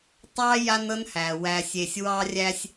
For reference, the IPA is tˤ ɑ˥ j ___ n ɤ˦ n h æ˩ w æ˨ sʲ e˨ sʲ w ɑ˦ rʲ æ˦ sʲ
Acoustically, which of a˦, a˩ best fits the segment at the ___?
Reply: a˦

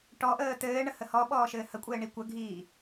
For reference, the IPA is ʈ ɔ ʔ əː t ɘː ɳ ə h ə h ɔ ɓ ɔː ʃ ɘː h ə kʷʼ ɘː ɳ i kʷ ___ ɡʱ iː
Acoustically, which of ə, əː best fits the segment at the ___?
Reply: ə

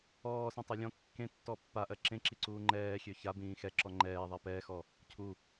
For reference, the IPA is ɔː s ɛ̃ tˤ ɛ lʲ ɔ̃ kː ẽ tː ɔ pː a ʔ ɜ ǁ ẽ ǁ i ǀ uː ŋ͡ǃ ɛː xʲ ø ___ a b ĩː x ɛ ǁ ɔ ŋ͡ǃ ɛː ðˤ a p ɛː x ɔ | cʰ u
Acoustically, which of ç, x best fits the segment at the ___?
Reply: ç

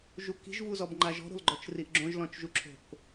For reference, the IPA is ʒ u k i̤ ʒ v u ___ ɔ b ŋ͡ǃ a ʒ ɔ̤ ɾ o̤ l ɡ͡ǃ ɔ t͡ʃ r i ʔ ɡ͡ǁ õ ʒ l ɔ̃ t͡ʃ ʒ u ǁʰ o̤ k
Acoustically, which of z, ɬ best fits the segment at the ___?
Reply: z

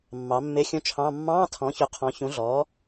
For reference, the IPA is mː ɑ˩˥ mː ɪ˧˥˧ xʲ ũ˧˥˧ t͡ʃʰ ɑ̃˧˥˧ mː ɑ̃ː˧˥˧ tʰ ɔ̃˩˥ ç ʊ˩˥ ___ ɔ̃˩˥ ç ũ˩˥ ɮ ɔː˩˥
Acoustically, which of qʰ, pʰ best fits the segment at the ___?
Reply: qʰ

